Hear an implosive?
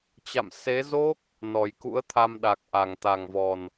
yes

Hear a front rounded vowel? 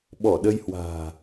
no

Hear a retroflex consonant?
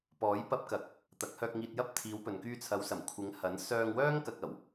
no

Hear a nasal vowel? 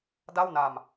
no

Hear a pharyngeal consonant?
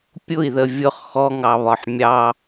yes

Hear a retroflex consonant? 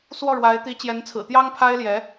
yes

